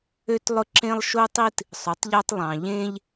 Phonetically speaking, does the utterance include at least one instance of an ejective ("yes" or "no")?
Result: no